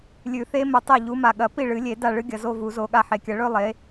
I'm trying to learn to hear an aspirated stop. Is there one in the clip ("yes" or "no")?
no